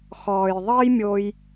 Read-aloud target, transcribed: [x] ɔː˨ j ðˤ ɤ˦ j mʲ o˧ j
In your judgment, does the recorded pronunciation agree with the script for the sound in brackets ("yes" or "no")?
yes